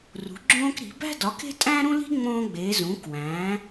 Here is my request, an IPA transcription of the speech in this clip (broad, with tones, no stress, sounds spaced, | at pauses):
r ṳ˩˥ ɡ͡ǁ õː˥ k ɾ i̤˩˥ b æ̤˥ d ɒ˩˥ k e̤˥ tʼ æ̃ː˥ ɾ ũ˥ l i̤˥ ŋ͡m õː˥ ɡ͡b e˩˥ z ũː˩˥ k w æ̃ː˩˥